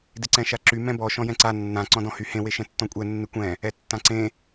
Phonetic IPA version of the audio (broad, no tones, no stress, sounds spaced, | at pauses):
d ɪ ǀ ɛ̃ ʃ a ǁ y m ɛ̃ b ɔ ʃ ɔ̃ j ɛ̃ ǀ a nː ã ǀ ɔ̃ d ɔ̃ h y h ẽ w e ʃ ɛ̃ tː ɔ̃ kʷʼ ɛ nː ɪ kʷ ɛ̃ | ɛ tː ã ǀ ẽ